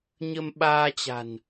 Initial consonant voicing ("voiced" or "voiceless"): voiced